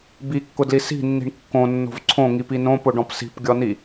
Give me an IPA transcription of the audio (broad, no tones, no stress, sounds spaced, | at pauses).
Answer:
b i kː ʊ d l i s i̤ nː i̤ ɳ kː õ nː o̤ v ǀʰ õ ŋ i p i n õ p ʊ ɖ ɔ̃ p s i̤ p ɡʲ ɔ n i